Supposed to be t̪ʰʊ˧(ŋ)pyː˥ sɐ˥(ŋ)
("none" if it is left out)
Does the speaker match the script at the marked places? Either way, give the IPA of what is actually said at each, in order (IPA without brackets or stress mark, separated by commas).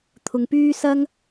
ŋ, ŋ